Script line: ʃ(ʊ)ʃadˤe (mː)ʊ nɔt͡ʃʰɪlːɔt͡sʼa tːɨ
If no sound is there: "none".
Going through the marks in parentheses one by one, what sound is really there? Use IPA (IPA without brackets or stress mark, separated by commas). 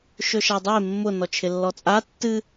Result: ɵ, mː